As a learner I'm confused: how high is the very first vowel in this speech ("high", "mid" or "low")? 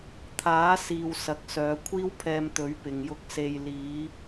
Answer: low